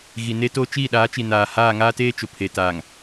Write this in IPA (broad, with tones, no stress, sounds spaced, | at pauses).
ɣ i˨ n e˦ t oː˦ t͡ʃ iː˦˨ ɗ aː˨˦ t͡ʃ i˨ n aː˨ h aː˦˨ ŋ aː˦ t eː˦ t͡ʃ ʊ˨ pʰ e˨ t aː˨ ŋ